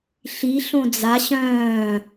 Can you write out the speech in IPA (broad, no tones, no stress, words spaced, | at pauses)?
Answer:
ɬi ɬõd͡za ɕœ̃ː